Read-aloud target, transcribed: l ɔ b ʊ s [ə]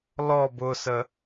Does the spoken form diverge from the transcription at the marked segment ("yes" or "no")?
no